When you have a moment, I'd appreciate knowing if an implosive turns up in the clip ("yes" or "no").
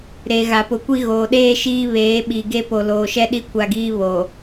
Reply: yes